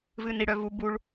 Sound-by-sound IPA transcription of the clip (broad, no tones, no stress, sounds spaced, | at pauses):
v ɨ n i ɽ œ v u b u ɭ